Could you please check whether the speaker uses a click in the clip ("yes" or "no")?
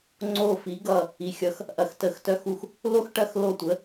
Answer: yes